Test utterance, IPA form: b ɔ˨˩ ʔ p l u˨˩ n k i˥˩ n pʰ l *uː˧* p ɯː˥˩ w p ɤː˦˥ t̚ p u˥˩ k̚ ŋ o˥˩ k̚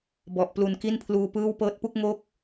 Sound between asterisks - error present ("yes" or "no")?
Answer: no